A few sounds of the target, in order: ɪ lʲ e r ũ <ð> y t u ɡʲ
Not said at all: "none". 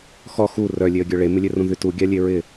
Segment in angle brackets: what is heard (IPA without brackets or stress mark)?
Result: ð